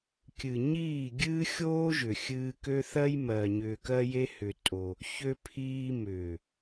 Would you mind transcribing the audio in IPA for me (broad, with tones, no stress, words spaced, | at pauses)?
kʲɨ˨ɲiː˦˨ɡʲɨː˦ xʲoː˦ʒʏ˨ xʲɨː˧kø˦θɜ˦j mɜ˨ ɲʏː˧kɜ˦je˦ hʏ˧tʼo˧ | çø˧pʰiː˧mʏː˨